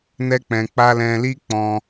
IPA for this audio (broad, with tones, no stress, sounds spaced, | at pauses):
n ɛ˦ k͡p ɛ̃˧ k͡p a˦ l ɛ̃˧ l i˦ k͡p ɔ̃˧